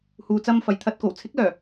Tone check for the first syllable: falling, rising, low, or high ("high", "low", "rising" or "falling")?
low